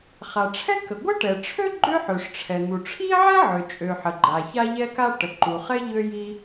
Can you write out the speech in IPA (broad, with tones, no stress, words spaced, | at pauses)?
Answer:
χa˩ʈ͡ʂʰɛ˥kə˩ ɡʷə˥ʈɛ˩ʈ͡ʂʰø˥ ɡ͡ǃø˥ ħø˩ʂʈ͡ʂʰɛ˩n̪u˩ ʈ͡ʂʰi˥ʕɛ˥ ʕø˩t͡ʃʼø˩ ħə˩ɡ͡ǃa˩ ça˥ʎɛ˥ka˥ ʈə˩ǃu˩χɛ˥ ʎø˥ji˥